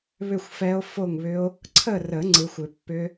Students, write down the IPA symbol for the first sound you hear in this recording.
β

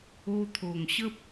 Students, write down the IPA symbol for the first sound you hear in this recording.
o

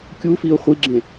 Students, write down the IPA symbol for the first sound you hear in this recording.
kʲ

